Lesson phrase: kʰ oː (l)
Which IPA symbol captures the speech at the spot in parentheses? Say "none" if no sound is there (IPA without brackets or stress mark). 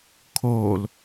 l